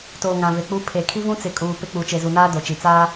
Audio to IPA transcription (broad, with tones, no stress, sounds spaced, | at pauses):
t oː˨ ŋ ã˨ v e˨ k͡p u˦ pʰ e˨ kʰ i˦ v ũ˦ t͡s ɪ˨ kʼ uː˨ p ɪ˦ k͡p u˨ t͡ʃ e˨ z u˨ n aː˦ d o˨ t͡ʃ i˨ t͡s aː˦